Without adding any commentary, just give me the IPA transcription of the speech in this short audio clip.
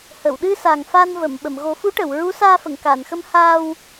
h ə˨˩˨ w ɗ ɨ˧ s a˨˩ ŋ f a˧ n v ə˨˩˨ m ɓ ə˨˩˨ m ɣ o˨˩˦ f u˧˥ ʈ ə˨˩˨ w ɹ u˧˥ s aː˧ f ə˨˩˨ ŋ k a˨˩˨ n x ə˧ m h aː˧ w

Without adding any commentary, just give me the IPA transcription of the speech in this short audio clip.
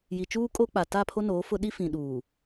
j i˨ t͡ʃ uː˦ kʼ o˦ k͡p a˨ t a˦˨ pʰ o˦ n oː˨˦ f ʊ˦ ɗ i˦ f ĩ˨ ɗ uː˨

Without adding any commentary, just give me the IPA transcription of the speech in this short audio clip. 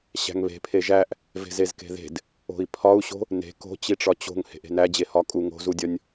ɕ æ̤ ŋ β e̤ pʰ e ʒ æ ʔ | v e̤ z e z k e̤ ð e̤ d | o̤ i̯ pʰ ɒ u̯ ɕ o̤ | n e̤ k o̤ t͡ɕ i ʈ͡ʂ ɒ t͡ɕ o̤ ŋ h e̤ ʔ e̤ n æ d͡ʑ e h ɒ kʼ u ŋ o̤ z u dʲ ɒ nʲ

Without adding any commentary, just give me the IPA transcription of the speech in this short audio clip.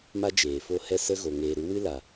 m a˦ d͡ʒ eː˨ f o˦˨ h ɛ˦ s ə˦ ɣ o˨ ŋ eː˨ ɾ u˨˦ w ɨ˦ l a˨

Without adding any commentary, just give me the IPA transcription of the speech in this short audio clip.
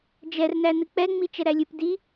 d͡ʒ ɛ r n æ n ɨ k͡p ɛ ŋ͡m i t͡ʃ ɛ ɾ æ lʲ ɨ p d i

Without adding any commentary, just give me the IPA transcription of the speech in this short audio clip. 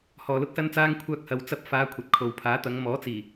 h ɔː˧ l ʊ˥ k̚ s ɐ˥ n t͡s aː˥ ŋ kʷʰ œː˧ k̚ h ɐ˨ w t͡s ɐ˧ p̚ f aː˨˧ kʷʰ ɐ˨˥ t̚ kʰ o˨ w pʰ aː˨˥ t̪ ɐ˨˧ ŋ m ɔː˨˥ t͡s iː˨˩

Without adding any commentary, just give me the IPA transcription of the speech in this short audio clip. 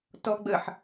t ɔ ɡ͡b ə ħ

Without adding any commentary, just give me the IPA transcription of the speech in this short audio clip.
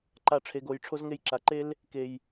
ǃ a˨ ʈ͡ʂʰ e˨ ɡ o˨ j ʈ͡ʂʰ o˧ z ŋ e˧ j ǁ a˨ ǃ e˦ l | k e˨ j

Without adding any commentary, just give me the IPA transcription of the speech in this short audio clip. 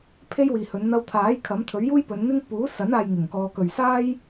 pʰ e˥ j w iː˨ h ɵ˨˧ n n̪ ɐ˧ w t̪ʰ aː˨˥ j kʰ ɐ˨˥ m t̪ʰ ɵ˨˥ ɥ j uː˥ j p ɵ˨˧ n n̪ ɪ˥ ŋ p uː˨˥ s ɐ˨˥ n aː˨ j ŋ ɪ˨˩ ŋ k ɔː˨ k ɵ˨˩ ɥ s aː˥ j

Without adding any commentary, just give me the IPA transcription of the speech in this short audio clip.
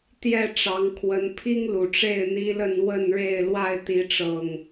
t̪ j ɛ˥˨ ʈ͡ʂ ɑ˨˦ ŋ kʰ w ə˨˦ n pʰ i˦ ŋ l u˨˩ ʈ͡ʂ e˥˨ ɪ̯ n̪ i˦ l ə˥˨ n w ə˥˨ n ɻ e˥˨ ɪ̯ l w a˥˨ ɪ̯ t̪ i˨˦ ʈ͡ʂ ɤ˨˩ ŋ

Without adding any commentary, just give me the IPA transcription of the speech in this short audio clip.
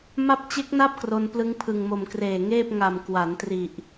m a˦˥ p̚ t͡ɕ e˦˥ k̚ n a˥˩ p̚ k r o˧ n p l ɯ˦˥ ŋ pʰ ɯ˨˩ ŋ m o˨˩ m k r eː˨˩ ŋ eː˥˩ p̚ ŋ a˨˩ m k w a˩˦ n t r i˨˩ ʔ

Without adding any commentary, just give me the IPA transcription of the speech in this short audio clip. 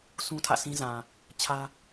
sʰ ũ˦ tʰ ä̰˦˨ sʰ ĩ˦ z ã˨ | t͡ɕʰ ä˦

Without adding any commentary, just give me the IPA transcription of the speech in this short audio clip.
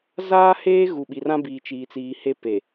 z aː˦ h eː˦ ɣ u˨ ɓ i˨ r ã˦ b iː˨ t͡ʃ iː˨ t͡s iː˨ h e˦ p e˨

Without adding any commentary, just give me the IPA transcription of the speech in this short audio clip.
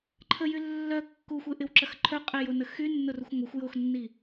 ǃʰ ə j y lː œ kː u xʷ e ʔ ɪ w ǁ ɐ x ǃʰ œ qʼ e j o n ə x y nː ʊ r u xʷ ŋʷ ɪ xʷ j o x nː i

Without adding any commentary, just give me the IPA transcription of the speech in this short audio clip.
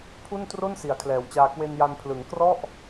pʰ u˥˩ n t r o˥˩ n s i˩˦ a̯ kʰ l ɛː˩˦ w t͡ɕ aː˧ k w e˧ n j a˧ n pʰ l ɯ˩˦ ŋ k r ɔ˥˩ ʔ

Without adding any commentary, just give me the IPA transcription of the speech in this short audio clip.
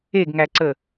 e ɡ ŋ æ ǀ ə

